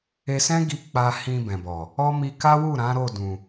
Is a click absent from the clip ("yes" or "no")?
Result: yes